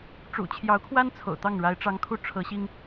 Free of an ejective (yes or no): yes